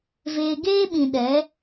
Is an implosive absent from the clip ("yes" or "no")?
no